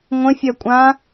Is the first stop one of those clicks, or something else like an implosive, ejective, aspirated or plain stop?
ejective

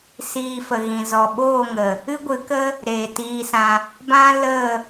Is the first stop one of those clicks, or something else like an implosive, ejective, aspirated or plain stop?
implosive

